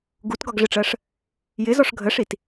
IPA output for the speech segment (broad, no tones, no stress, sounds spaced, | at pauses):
ɡ u t ɡ ɒ ɡ ʐ ɪ ʈ͡ʂ ɜ ʂ | j ɪ z ɔ ʂ ɡʱ ə ʂ i t